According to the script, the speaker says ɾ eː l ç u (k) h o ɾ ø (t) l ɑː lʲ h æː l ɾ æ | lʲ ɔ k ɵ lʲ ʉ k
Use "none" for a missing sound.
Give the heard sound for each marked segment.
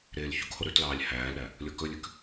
k, t

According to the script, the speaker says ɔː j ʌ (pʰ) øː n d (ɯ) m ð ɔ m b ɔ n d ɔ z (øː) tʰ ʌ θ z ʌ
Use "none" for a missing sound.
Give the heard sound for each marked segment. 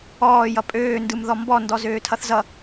pʼ, ɯ, øː

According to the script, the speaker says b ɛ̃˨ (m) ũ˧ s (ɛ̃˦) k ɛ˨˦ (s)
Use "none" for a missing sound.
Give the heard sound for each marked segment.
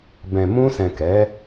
m, ɛ̃˨, none

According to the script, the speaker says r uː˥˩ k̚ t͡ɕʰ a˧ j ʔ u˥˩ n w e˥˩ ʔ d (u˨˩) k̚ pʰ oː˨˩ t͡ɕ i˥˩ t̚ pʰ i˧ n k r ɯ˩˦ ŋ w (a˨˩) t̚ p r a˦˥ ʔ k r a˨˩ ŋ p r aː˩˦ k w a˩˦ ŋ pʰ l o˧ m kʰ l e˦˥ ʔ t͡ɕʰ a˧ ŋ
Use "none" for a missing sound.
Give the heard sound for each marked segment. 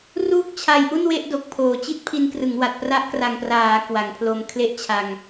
o˨˩, a˨˩

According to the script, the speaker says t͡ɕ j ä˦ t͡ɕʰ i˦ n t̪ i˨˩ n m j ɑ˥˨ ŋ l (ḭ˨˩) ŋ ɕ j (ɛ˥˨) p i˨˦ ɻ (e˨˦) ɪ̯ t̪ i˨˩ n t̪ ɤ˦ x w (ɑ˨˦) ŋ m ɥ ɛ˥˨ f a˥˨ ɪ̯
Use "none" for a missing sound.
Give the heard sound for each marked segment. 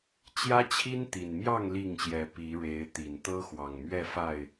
i˥˨, ɛ˨˦, e˨˦, ɑ˨˩

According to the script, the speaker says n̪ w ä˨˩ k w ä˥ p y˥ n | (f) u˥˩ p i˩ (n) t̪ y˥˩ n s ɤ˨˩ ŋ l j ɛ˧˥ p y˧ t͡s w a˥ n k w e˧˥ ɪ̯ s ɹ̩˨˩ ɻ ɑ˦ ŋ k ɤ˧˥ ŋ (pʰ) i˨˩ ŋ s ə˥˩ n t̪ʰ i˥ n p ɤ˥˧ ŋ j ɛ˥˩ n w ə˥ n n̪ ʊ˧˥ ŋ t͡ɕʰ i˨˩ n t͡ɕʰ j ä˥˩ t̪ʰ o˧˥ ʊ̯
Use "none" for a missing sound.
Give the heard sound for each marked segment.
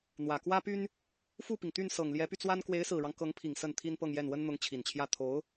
f, ŋ, pʰ

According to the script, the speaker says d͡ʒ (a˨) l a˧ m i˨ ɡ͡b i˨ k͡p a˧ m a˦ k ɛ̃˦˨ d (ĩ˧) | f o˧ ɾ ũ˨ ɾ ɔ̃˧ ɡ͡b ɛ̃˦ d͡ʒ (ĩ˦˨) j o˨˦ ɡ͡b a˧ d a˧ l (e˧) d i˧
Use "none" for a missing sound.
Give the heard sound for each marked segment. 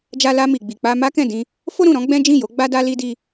a˧, ĩ˧, ĩ˦˨, i˧

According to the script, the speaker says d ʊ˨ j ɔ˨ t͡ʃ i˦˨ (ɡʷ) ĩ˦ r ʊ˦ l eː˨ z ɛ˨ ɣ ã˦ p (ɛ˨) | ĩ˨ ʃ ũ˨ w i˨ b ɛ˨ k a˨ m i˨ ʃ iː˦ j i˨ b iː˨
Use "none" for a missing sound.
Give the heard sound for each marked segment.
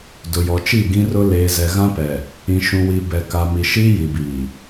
ɡ, ɛ˨

